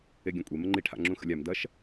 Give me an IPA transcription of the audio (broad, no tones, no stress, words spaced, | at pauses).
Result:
eɡʲɐ̃kʷʼe məŋ͡ǃi ʈʰa̰ŋ͡ǁũxə̰lʲam dɐʃ